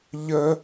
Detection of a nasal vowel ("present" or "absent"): absent